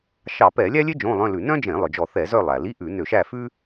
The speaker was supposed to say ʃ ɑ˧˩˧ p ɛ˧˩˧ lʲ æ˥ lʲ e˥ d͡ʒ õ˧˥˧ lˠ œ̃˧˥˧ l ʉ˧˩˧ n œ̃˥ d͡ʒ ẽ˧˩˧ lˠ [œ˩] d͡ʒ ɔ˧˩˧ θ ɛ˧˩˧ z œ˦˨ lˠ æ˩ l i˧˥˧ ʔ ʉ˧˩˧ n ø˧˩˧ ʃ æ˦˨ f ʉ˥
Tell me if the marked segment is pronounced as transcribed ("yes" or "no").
yes